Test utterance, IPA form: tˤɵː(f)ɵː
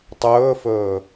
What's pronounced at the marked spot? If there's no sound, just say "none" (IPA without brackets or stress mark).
f